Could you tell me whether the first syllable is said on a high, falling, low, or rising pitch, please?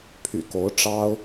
low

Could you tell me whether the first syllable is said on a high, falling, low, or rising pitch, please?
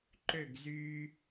falling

